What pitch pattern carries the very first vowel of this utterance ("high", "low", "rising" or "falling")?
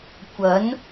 rising